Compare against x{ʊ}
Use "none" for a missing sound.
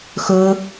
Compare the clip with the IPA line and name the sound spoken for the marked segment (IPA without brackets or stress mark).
ʊ